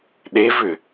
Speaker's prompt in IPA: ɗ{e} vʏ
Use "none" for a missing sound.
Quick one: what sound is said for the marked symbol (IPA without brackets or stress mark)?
e